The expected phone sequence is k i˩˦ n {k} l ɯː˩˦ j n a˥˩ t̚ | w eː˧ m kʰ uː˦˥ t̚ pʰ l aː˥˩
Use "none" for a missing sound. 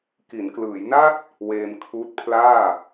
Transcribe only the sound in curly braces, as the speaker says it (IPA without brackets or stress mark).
k